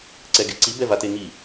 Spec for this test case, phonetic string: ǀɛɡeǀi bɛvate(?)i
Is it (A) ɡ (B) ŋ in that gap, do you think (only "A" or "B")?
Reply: B